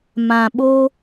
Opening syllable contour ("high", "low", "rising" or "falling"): low